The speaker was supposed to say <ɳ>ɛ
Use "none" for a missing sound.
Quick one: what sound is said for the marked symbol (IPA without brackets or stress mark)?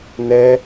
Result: n